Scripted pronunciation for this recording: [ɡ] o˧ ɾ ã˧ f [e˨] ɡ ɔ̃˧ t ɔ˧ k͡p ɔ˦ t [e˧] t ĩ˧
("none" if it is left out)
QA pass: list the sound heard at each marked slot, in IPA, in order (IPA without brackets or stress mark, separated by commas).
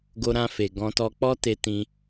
ɡ, e˨, e˧